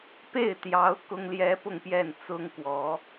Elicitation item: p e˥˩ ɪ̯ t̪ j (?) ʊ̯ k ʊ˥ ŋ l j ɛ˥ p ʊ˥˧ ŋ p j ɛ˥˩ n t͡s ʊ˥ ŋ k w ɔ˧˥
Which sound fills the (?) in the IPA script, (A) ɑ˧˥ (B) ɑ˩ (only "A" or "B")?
A